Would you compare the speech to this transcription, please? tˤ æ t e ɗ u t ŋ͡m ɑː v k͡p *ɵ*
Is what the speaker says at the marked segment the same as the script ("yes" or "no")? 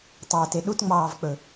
yes